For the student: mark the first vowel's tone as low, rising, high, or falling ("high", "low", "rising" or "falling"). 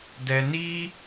low